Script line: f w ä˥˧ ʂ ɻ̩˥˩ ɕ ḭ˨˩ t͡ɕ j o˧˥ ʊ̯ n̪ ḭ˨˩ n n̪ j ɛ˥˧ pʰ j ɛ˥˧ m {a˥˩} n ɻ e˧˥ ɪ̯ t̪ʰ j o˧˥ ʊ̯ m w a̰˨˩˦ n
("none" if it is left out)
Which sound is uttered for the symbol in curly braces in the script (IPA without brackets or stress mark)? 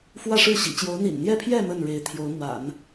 ə˥˩